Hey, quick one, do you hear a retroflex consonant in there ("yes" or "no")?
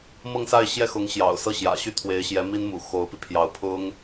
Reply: no